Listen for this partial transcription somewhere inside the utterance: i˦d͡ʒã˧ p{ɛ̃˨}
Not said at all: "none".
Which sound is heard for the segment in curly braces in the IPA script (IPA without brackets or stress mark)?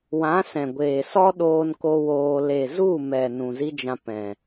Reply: ɛ̃˨